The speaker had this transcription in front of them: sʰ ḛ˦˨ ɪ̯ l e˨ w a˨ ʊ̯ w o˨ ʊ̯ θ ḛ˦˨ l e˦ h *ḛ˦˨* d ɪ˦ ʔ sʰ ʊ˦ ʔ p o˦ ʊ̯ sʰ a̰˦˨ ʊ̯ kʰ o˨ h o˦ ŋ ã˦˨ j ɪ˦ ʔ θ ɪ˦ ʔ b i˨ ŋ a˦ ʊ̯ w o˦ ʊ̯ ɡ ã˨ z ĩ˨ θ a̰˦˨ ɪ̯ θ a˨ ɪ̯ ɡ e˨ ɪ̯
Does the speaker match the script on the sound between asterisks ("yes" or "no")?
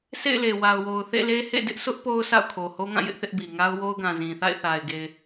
yes